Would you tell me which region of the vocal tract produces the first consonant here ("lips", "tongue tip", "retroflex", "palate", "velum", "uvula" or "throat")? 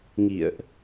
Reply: velum